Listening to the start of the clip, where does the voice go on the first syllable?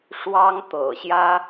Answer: high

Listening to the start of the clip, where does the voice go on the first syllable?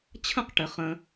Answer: falling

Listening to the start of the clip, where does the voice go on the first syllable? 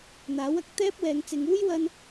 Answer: rising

